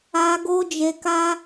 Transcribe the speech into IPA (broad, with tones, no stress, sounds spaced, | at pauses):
a˧ ɡ o˦ d͡ʒ e˧ k a˦